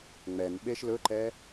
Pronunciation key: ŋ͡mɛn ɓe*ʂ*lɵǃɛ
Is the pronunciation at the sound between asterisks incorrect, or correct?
incorrect